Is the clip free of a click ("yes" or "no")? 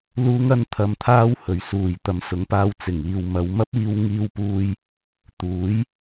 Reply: yes